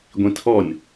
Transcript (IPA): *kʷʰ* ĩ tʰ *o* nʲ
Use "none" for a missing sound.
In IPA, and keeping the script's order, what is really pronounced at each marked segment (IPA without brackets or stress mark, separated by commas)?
ɡʷ, ɔ